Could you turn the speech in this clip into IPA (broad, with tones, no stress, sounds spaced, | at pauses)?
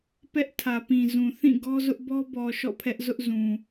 p ɛ˦ ʔ tʰ ä˨ p ĩ˨ z ũ˨ θ ĩ˦˨ ɡ ɔ˦ z ʊ˦ ʔ b ɔ˦ b ɔ˨ ʃ ɔ̰˦˨ pʰ ɛ˦ ʔ z ʊ˦ ʔ z ũ˨